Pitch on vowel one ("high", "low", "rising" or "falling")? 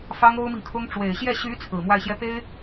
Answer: high